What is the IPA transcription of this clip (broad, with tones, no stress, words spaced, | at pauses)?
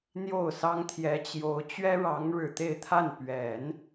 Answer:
n̪jo˥˩ʊ̯sɑ˥ŋt̪ʰjɛ˧˥t͡ɕjo˧˥ʊ̯ t͡ɕɥɛ˥ɻɑ˧˥ŋ ɻɻ̩˨˩t̪e˥˧ɪ̯t̪ʰa˥˩n pɥɛ˨˩˦n